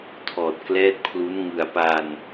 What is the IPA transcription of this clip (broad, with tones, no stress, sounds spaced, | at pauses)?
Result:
tʰ ɔː˨˩ t̚ k l ɛː˦˥ t̚ pʰ l u˦˥ n ŋ ɯ˨˩ a̯ p a˧ n